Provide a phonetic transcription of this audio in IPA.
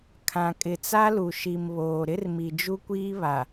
kʰ ã˨ kʼ ɪ˨ t͡s a˦ l u˨ ʃ i˨ m β oː˨ ɾ ɪ˦ r m i˨ d͡ʒ u˦ kʷ iː˦ β a˨

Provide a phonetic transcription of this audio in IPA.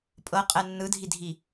pʼ ɤ qʼ ɛ nː ɯ dʱ i dʱ i

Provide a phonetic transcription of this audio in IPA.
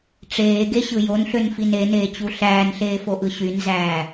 ʈ͡ʂ eː ɡ e ɕ ɯ j o n ɬ ø n f i n e n eː t͡ɕ u ɬ æː n ɬ eː f o ʔ ɯ ɕ y n z æː

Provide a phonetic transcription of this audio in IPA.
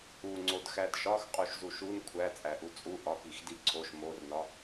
u ŋ͡ǀ o d x æ d ʃ ɒ x qʼ u ʃ z u ʃ u n kʷʰ æ t͡sʼ æ ʔ u t͡sʼ u ʔ ɒ k i x d i ǀʰ o ʃ m o r n ɒ

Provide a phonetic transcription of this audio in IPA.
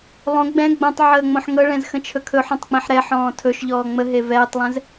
lˠ õ ɡ͡b ɛ̃ ɡ͡b õ tˤ ʕ əː ŋ͡m õ ħ ŋ ɤ ɭ ɛ̃ z x ə̃ t͡ʃʰ ɵ kʰ ɵ ħ õ tˤ k͡p ẽ ħ ɾ ɛ ħ ɔ̃ː tʰ ɵ ʃ ʎ ɔː ŋ͡m ə ɦ e v ɛː tˤ lˠ ɛ̃ z

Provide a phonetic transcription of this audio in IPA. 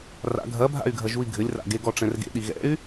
r a̰ ɡʱ ɐ bʱ a̰ y̯ ɡʱ ɐ ʒ u i̯ ɡʱ ɘ lʲ r a̰ ɡ e ɡ ɔ ʈ͡ʂ ɛ̃ r ɡ ḛ ɗ i ɣ ɛ̰ y̯

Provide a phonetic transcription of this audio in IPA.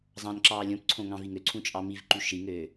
zˤ ɑ̃ n ǁ ɑː lʲ õ p ǀʰ õ ŋ ɑ̃ v i ŋ ø ǀʰ ũ t͡ʃʼ ɑ m i v ǃ y ʃ i ŋ øː

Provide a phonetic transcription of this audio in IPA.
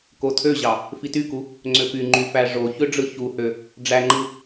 k o tʰ ø ʑ ɑ | f i t y k u | ŋ͡ǀ ø p y ŋ͡ǃ y f æ ʐ o ç ø ɖ͡ʐ ɯ ç u h ø | ɖ͡ʐ æ ŋ͡ǃ ɯ

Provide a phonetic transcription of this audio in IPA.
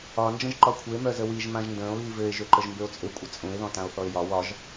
ɒ n d͡ʒ ə̃ ʒ ǃ ɒ kʷʰ ɘ e̯ m œ z ə w i ʒ m ã ʒ n d ə̃ː o̯ ɣ i v ɘ e̯ ʒ ø ǃ ə ʒ m b ø o̯ t͡sʼ ɘ kʷʼ ə t͡sʼ ũ e̯ ð ɔ̃ t ã o̯ θ ɔ e̯ j ɒ w ɒ ʒ

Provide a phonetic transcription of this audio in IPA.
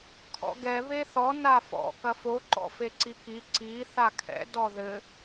kʰ ɔ̰ ɡ ɛ β e θ ɔ n a f ɔ̰ k ɐ f o ǃ ɔ̰ f e ǀ i k i ǀ i θ a kʰ ɛ̰ d ɔ ð ɘ

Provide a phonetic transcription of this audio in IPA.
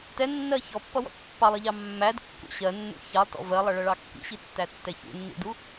t ɛ nː ɜ ç ɔ pː ʌ w ɔ̰ t pː ɑ lˠ i ʎ ɑ mː æ d kː ṵ ɕ ɜ nː ṵ ç ɑ lˠ t ɔ̰ v ɜ lˠ ʌ ɭ ʌ ɭ ɑ kː ḭ ɕ i tː æ tː ɛ ç ṵ nː ḭ d u

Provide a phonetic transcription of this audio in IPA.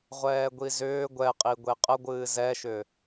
ʁʷ ɛː ɡʷ i z ʏː ɡʷ ɛ qʼ i ɡʷ e qʼ ə ɡʷ ɨː z ɛ ʃ ʏ

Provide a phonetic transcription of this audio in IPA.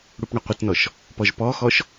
ɽ u p ɳ ʌ qʷ ə t n ɔ ʃ | p ɔ ʒ p ɔ x ɔ ʃ

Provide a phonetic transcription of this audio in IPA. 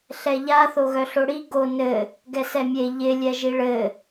ɬ ɛ ʎ a θ o ɣ œ ɬ o ɽ i ɡ o n ɘ | ɡ ɛ s ɛ mʲ e ʎ ɪ lʲ ɛ ʒ i ɭ ɘ

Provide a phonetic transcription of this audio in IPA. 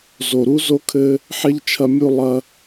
z o˨ ɾ u˥ z o˥ kʰ ɘ˦ | ħ e˥ ʎ t͡ʃʰ ɐ˦ mʲ u˦ lˠ ɐ˦

